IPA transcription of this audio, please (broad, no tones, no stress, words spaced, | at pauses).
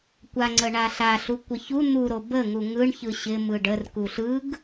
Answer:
kʷaŋ͡ǀə ɳaɬaɬu kʷəçu n̪uɾo bəŋu ŋɯɳçɯ ɕɪ mɯɖər kuɬɯɡ